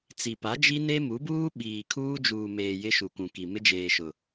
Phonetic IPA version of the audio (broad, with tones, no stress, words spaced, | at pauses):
t͡si˨pa˨˦d͡ʒi˦ne˦ mu˨˦buː˦ ɓiː˨kʰuː˦d͡ʒuː˨meː˨ jɪ˦ʃu˨kʷũ˨ki˨ mɪ˦d͡ʒeː˨ʃʊ˨